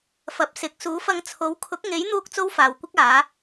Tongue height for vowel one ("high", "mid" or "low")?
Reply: low